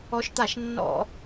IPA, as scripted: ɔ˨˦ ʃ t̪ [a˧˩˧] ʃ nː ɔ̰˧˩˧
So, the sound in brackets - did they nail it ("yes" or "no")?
yes